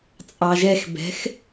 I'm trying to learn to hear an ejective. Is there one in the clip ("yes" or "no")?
yes